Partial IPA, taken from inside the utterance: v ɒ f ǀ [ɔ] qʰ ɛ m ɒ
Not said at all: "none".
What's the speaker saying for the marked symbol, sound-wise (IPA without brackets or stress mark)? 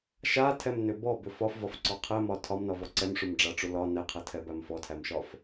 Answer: ɔ